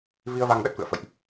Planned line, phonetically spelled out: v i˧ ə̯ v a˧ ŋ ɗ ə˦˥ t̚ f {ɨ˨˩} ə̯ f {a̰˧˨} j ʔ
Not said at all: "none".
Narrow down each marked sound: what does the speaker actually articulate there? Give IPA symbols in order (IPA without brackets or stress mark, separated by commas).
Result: ɨ̰˧˨, ə̰˧˨